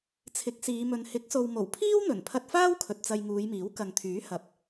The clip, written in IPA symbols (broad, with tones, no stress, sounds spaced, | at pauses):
t͡sʰ ɪ˨˥ k̚ s iː˨˧ m ɵ˨ n h ɪ˨˥ k̚ s o˨ w m o˨˩ w pʰ iː˥ w n̪ ɵ˨˩ n pʰ ɐ˧ t̚ f aː˥ w kʰ ɵ˨ t̚ t͡s ɐ˧ j ŋ uː˨˧ j m iː˨˥ w k ɐ˨ ŋ t̪ʰ yː˨˥ h ɐ˨ p̚